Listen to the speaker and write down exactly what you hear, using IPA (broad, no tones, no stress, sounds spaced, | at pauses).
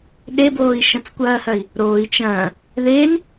ɗ e b oː i̯ ʃ ɐ̃ t͡s kʷ ɐː h ɐ i̯ | ɾ oː i̯ t͡ʃ ɐ̃ː | ð e n